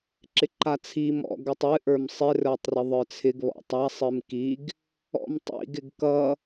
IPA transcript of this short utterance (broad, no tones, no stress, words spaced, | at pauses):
ǁɪǃat͡sʰi mɔ̰ɡ ʌtˤɨ ʔə˞msˤɪ rə˞tˤrɪðˤə˞t͡sʰɪɡ βɔ̰tˤa sˤɨmkiɡ | ɔ̰mtˤḭɡ ɪɡkʌ